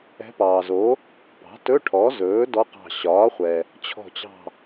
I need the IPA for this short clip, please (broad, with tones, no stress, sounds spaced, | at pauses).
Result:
ɛ̤˧˥ p ɑː˩ z o˩˥ | p ɑ̤˩˥ t ɵ˧˥˧ ʈʰ ɔ˩˥ z ɵː˩˥ d ɔ˧˥ q ɑ̤˧˩ ɕ ɒː˩˥ χʷ ɛ˩ | t͡ɕʰ ɔ̤˧˩ t͡ɕ ɑ̤˧˩